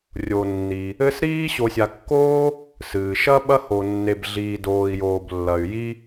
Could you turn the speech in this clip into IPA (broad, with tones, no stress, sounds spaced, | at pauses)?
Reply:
rʲ o˩ nː i˩ | ɘ˦ s ɾ iː˥ ɕ o˨ sʲ a˨ kː oː˥ | s ɨː˩ ʃ ɐ˦ ɓ ɐ˦ h o˨ nː e˨ b ɮ iː˨ d oː˨ i̯ j oː˨ b lː ɐ˨ y̯ j i˥